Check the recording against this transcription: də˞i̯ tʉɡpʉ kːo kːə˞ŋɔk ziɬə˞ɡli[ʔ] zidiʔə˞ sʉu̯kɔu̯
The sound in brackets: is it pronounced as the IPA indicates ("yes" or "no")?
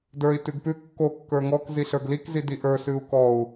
no